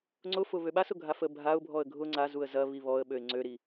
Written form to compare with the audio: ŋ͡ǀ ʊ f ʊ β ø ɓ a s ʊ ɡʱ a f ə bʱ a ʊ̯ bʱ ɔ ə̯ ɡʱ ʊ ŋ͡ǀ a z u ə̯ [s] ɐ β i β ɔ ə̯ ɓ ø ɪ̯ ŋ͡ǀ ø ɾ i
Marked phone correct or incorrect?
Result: incorrect